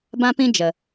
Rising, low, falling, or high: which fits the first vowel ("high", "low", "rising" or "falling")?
high